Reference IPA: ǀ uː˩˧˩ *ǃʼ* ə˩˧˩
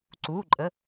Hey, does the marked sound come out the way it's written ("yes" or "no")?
yes